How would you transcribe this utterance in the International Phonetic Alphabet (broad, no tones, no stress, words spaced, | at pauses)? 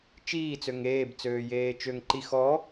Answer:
t͡ʃiː t͡søŋeːb t͡søːjeːt͡ʃøŋ ǃix ɔ